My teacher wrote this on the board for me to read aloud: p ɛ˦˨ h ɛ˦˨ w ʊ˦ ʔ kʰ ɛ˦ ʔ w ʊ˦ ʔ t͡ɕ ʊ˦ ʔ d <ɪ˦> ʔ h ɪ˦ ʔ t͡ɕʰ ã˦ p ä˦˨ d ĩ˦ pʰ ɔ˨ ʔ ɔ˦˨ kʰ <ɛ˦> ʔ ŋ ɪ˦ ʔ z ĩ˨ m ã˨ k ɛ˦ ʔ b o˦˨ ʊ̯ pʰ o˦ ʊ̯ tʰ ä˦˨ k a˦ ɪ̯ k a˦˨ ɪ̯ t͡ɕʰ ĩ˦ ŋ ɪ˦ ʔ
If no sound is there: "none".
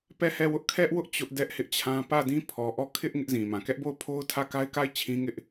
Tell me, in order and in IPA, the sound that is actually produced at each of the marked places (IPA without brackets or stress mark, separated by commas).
ɛ˦, ɪ˦